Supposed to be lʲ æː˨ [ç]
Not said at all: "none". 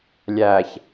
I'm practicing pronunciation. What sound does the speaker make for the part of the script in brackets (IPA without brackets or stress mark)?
ç